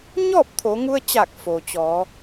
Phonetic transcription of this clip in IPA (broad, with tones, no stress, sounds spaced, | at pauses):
ɲ ɔː˥˨ p̚ t̪ʰ o˩˧ ŋ u˧ ə̯ t͡ɕ aː˧˩ k̚ f o˩ t͡ɕ ɔː˩˧